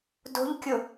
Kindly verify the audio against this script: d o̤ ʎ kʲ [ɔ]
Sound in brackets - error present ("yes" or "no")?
yes